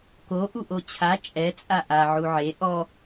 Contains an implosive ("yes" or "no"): no